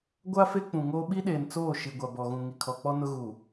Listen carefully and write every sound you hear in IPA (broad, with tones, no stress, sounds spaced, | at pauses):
ɡʷ a˦ f e˦ k͡p ũ˨ ŋ oː˦ ɓ i˦ ɗ eː˨ n t͡s oː˦˨ ʃ i˨ ɡʷ a˨ b ɔ˨ ɣ ũ˨ ŋ i˨ kʰ ɔ˨ k͡p ɔ˦ n ʊ˦ ɣ u˨